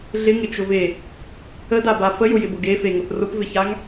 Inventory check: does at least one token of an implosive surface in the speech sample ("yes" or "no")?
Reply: no